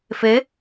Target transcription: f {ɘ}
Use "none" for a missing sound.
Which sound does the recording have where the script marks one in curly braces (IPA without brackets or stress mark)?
e